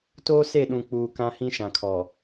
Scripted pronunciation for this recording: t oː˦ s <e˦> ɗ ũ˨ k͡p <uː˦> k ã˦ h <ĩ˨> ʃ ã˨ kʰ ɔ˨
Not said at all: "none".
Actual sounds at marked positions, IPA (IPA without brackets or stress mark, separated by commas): e˦˨, uː˨, ĩ˦